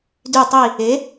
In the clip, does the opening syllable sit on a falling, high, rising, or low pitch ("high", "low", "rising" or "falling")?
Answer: falling